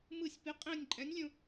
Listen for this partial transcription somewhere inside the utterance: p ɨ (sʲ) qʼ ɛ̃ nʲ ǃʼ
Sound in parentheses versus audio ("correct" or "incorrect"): incorrect